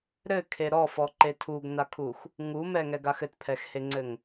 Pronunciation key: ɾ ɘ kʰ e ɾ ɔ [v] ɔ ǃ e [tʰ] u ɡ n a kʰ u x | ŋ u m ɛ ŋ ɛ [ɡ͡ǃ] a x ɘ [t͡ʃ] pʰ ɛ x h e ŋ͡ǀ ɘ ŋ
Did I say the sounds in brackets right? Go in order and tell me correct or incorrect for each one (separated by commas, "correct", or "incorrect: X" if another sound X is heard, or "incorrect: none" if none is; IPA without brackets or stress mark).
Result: incorrect: f, correct, incorrect: ɡ, incorrect: t